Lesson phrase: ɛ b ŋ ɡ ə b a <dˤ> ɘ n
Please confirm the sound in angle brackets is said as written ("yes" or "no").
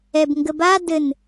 no